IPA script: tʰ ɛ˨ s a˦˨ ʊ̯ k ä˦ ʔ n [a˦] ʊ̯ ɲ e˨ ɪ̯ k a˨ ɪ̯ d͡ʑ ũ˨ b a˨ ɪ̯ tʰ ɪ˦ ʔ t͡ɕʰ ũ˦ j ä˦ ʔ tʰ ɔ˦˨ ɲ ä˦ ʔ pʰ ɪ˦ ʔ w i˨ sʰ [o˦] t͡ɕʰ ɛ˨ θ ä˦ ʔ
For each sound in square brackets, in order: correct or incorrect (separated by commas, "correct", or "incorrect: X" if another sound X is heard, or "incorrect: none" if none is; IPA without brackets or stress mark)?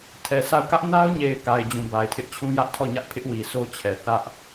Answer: correct, correct